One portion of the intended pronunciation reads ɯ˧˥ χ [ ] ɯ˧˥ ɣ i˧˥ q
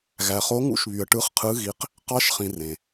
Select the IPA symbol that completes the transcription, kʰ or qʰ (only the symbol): qʰ